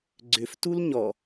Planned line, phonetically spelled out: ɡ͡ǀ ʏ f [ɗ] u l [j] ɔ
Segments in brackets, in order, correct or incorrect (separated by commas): incorrect, incorrect